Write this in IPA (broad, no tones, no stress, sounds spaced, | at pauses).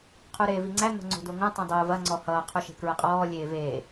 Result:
qʰ u ɾ eː v i ŋ͡ǀ æ n̪ o̤ ŋ͡ǀ o̤ d o ŋ õ tˤ õ dˤ o v ɐ ŋ͡ǀ ɔ h ʌː qʰ u ʃ e̤ k ɹ ə qʼ ɔː lʲ eː v eː